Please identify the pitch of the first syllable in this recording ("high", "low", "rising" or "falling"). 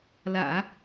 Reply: low